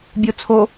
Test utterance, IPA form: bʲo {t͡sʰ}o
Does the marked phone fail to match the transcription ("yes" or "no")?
no